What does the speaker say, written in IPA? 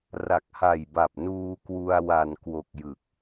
ra˨˩k̚ha˨˩jba˨˩p̚ nuː˧kwu˧a̯ wa˨˩nkwo˨˩k̚ jɯ˨˩k̚

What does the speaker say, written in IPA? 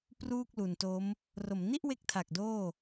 pruː˥˩k̚lu˨˩nto˦˥m | ro˩˦mni˥˩ʔwe˦˥k̚tʰa˨˩k̚ doː˥˩

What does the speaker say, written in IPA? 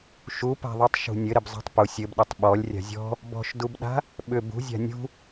ʃupa̤ðˤutˤ ʃṳnʲɘ ɾɘbzˤa̤tˤpu sʲɘb ɗʏtˤɓɔlʲ rʲa̤zʲɔ̤ | bɔ̤ʃdubɗa̤ | ɓʏ bṳzʲa̤ nʲṳ

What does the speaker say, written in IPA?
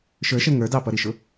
ʃə˞ʃɛ ŋə˞ dɑpʌɾiʃʊ

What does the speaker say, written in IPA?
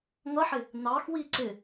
ŋʌħɪ | nɑxwi ǀɪ

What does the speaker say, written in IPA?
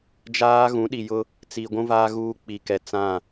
d͡ʒaː˦ ɣũ˨˦ɗi˨jʊ˦ | t͡si˨ɡʷũ˦vaː˦ ɣuː˦k͡pi˨kɛ˨ t͡sã˦˨

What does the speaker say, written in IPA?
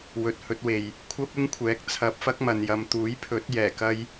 wɵ˨˥t̚hɵ˨˥t̚we˨j | kʷʰɐ˥p̚ɪ˥ŋkʷʰɛː˨˥k̚ t͡sʰɐ˧p̚fɐ˥k̚mɐ˨njɐ˨m t̪uː˨˥jpʰɵ˨˥t̚ jɛː˨˩kɐ˧j

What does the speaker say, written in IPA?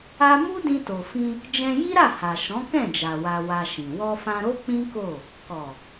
a˦ mu˦dĩ˧to˨fĩ˧ | d͡ʒɛ̃˧ji˦ɾa˦˨ ha˨ʃɔ̃˨˦kɛ̃˦˨d͡ʒa˨ wa˧wa˧ʃĩ˨ wɔ˧fã˧ɾo˦ k͡pĩ˦ko˦˨ | kɔ˨

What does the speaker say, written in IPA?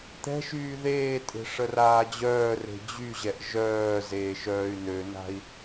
t̪ɛ̤ ʃyːðeːtʼe̤ ʂəraːd͡ʑœːre̤ d͡ʑyʑɛʔ ʒœː zeːʃœːy̯nøna̤i̯

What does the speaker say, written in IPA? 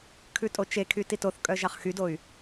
kʰʉtʼot͡ʃekʰy titoθkʼœ ʒɑχxydoy̯

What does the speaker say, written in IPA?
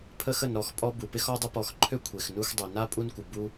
pʰə˥xə˨nɾɔ˨xpʼɔ˥ bu˩pɪ˥x ɔ˦dˤə˦pɔ˨xǃʰø˥ kʷʰe˩xnu˦x dˤø˩na˥pʼu˦nkʷɪ˩ bu˦

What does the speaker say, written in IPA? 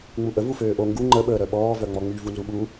ŋ͡muʔə vuføːʔo ŋɡu ŋ͡ǃə ɓəːɾœɓɔː vœŋ͡mɔŋ͡my vunzuɓu

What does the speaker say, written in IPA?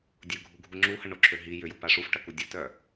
dʲʊɡʱuɡʱu ŋ͡ǁuhɐɳoǁʰø ɦi jʏjʊpa ʂufʈɐku dʲətœ

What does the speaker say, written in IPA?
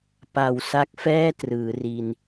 pa˨˩wsa˦˥k̚fɛː˥˩ trɯː˩˦ri˧n

